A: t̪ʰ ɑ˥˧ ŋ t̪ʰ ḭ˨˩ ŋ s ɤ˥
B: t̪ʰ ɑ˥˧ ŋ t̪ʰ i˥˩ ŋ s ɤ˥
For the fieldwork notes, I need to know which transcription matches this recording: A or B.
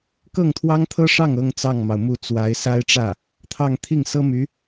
B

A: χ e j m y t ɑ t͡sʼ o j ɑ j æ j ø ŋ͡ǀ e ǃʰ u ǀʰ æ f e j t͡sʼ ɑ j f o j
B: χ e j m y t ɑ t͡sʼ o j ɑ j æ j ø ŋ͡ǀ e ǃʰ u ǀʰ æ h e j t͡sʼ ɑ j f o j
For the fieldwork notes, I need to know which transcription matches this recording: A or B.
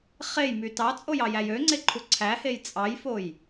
B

